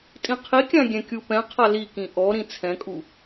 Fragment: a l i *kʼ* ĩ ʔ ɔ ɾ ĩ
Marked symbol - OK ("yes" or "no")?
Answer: no